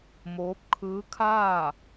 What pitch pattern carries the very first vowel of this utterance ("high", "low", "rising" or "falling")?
rising